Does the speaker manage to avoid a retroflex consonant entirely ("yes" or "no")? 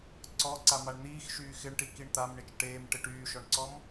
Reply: no